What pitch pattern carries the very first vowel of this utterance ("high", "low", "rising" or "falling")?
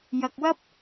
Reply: low